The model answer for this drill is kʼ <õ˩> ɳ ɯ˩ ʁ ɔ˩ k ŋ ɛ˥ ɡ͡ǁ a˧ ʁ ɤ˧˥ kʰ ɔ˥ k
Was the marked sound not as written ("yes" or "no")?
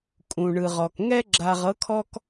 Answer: yes